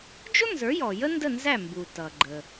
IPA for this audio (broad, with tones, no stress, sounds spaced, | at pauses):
d͡ʒ ʊ˥ n z ə˞˩˥ j ɔ˩ j ə˥ n d ə˥˩ n z æ˥˩ m b u˩ t ʌ˩ ɡ͡ǃ ə˩